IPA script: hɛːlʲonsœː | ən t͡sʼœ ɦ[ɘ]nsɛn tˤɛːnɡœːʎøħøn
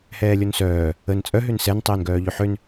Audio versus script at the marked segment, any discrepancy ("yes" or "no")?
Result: yes